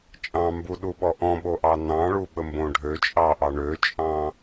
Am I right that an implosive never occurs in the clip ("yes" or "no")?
no